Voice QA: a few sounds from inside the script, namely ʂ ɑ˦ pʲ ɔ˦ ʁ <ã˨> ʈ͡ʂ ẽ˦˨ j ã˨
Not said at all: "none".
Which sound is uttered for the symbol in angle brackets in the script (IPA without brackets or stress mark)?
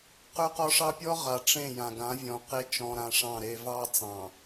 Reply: a˨